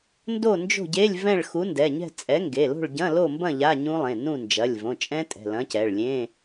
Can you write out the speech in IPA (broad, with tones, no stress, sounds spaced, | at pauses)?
n d o˥˨ n d͡ʒ o̤˥˨ ɟ e˧˥˧ lʲ v ɛ̃˥˨ ɭ x u˨˥ n d ɛ˩˧˩ ɲ ɛ̤˥˨ t͡sʼ ɛ˨˥ ŋ ɡ e˩˧˩ l o̤˥˨ ɭ ɟ ɐ̃˧˥˧ l o˥˨ m b ɐ̃˥˨ ʎ a˧˥˧ ɲ ũ˦˥ lˠ ẽ˩˧˩ n ũ˥˨ n d͡ʒ ɐ˩˧˩ lʲ v õ˩˧˩ t͡ʃʼ ɛ̃˦˥ tʼ ɛ̤˩˧˩ l ɐ̃˨˥ c ɛ˩˧˩ ɭ lʲ ẽ˧˥˧